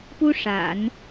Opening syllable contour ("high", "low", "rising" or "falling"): high